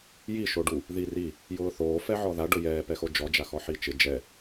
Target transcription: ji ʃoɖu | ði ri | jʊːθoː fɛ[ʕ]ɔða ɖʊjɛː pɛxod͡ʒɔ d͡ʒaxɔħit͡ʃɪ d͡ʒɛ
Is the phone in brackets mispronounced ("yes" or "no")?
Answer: no